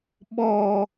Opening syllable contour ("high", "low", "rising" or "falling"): low